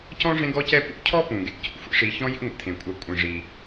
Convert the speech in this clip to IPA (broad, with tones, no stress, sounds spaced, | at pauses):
c ɔ̃˥ ʐ ẽ˦ ɡ ɔ˦ c ɛ˦ p ṵ˥ cʰ ɔ˥ p ũ˩ ɡ ḛ˨ c ṵ˩ xʷ ḭ˦ ʂ i˨ ç ɔ̃˦ j ḭ˥ ŋʷ ɛ̰˨ t̪ʰ ẽ˩ kʷʼ a˨ kʷʼ ĩ˩ ʐ i˩